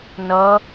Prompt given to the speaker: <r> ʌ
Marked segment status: incorrect: n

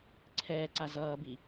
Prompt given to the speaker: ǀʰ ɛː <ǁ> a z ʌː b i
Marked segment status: incorrect: ǀ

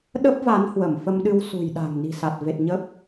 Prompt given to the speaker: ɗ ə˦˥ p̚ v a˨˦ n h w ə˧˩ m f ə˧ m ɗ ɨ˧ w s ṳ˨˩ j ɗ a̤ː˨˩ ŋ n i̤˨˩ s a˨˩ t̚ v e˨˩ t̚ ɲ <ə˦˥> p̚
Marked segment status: correct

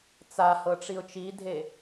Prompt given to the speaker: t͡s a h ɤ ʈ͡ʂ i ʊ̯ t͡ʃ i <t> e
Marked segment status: incorrect: dʱ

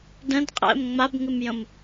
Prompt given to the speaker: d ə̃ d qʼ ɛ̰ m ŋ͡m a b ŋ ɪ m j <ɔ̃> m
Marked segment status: incorrect: ə̃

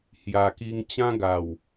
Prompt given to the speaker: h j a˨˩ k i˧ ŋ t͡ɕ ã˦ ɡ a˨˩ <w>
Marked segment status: correct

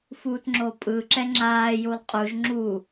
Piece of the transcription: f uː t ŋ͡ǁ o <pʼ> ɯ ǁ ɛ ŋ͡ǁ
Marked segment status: correct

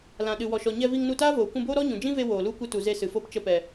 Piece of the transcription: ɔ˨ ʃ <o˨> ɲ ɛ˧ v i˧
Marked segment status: incorrect: ɔ˨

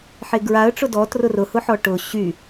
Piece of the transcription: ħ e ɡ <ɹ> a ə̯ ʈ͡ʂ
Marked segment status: correct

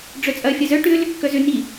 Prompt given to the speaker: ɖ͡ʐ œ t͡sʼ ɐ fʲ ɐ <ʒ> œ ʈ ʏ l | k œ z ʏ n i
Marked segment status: incorrect: z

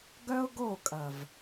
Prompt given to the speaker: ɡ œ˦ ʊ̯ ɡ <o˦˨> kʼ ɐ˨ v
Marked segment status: correct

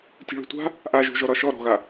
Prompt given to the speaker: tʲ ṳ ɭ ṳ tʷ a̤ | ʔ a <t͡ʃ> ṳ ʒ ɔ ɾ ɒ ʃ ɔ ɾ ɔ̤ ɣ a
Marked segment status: incorrect: ʒ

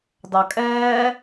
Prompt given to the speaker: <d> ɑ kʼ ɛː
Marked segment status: correct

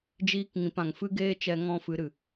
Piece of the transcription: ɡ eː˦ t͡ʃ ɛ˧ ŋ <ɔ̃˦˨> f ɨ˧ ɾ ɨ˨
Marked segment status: correct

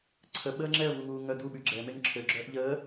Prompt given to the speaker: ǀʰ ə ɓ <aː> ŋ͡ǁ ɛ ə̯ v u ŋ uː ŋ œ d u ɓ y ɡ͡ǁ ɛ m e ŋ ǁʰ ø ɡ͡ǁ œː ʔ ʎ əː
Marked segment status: incorrect: əː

